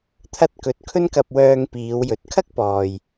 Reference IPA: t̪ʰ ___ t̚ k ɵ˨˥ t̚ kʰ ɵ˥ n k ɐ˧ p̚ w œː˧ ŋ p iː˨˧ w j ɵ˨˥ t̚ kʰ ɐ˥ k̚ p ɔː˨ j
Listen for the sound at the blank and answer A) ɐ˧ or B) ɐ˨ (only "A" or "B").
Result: A